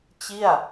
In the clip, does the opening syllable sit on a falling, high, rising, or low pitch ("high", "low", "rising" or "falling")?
falling